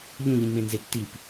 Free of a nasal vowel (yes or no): no